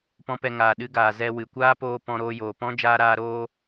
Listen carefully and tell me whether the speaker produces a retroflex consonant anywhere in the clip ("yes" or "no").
no